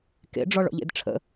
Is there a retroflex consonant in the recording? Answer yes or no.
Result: yes